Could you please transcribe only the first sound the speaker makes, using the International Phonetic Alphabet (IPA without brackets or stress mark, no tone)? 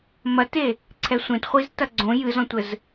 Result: m